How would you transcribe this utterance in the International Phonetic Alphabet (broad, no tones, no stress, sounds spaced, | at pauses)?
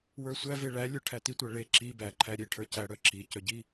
w ə˞ sʷ æ v e ɭ æ lʲ ə˞ ʈʰ æ t i tʷ æ ɭ e ǁ i b æ ǃʰ æ ɾʲ e ʈʰ ə˞ c æ ɽ œ ǁ i c œ ɟ i